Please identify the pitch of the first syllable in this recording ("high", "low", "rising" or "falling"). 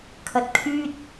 low